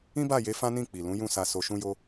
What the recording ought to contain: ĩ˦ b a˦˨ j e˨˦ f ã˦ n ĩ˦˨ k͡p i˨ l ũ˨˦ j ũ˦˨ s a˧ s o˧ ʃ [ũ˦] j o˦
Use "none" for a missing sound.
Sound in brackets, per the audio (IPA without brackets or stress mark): ũ˦